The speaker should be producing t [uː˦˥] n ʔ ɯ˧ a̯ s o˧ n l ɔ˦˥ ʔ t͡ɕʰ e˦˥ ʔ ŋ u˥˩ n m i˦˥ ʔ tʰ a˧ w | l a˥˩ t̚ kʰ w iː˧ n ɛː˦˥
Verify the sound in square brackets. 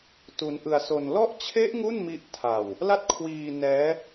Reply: incorrect: u˦˥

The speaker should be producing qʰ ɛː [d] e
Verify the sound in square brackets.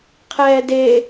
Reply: correct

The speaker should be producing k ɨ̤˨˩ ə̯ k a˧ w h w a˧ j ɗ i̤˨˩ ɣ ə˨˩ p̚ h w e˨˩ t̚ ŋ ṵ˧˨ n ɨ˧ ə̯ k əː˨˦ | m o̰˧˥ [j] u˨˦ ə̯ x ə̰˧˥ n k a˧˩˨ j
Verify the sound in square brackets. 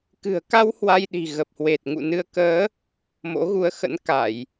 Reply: incorrect: ɣ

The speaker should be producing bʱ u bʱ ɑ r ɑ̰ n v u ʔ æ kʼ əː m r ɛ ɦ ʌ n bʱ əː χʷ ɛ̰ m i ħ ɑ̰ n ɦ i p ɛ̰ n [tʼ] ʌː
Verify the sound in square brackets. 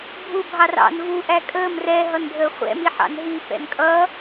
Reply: incorrect: kʼ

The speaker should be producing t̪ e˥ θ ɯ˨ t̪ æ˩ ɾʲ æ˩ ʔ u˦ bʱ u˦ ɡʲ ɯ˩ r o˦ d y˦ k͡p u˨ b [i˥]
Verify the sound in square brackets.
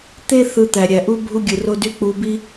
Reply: incorrect: i˦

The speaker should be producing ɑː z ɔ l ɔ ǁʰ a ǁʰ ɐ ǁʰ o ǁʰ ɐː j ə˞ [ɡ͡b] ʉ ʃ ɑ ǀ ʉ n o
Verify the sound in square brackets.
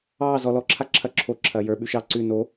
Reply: incorrect: ɓ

